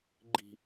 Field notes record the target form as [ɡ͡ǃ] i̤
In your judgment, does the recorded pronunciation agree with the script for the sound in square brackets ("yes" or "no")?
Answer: yes